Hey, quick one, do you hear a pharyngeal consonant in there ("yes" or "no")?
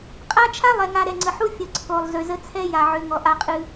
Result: yes